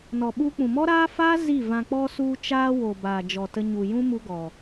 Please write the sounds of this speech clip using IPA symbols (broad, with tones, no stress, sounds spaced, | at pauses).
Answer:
n ɔ˨ ɓ u˧ k͡p ũ˨ m ɔ˦ ɾ aː˦ f aː˦ z i˦˨ v ã˧ k͡p ɔ˧ s u˧ t͡ʃ aː˧ w o˨ b aː˨ d͡ʒ ɔ˨ t ə˧ ɲ u˨ j ũ˦ m u˦ ɡ ɔ˨